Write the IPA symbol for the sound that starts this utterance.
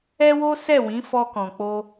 ɛ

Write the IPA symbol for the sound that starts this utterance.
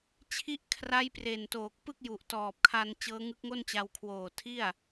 t͡ɕʰ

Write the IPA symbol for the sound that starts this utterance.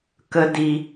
k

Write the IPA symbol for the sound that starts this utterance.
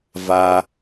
v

